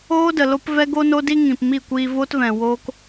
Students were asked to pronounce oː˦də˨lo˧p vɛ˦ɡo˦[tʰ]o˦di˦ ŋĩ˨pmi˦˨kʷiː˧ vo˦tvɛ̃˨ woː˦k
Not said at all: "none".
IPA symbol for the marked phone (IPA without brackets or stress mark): n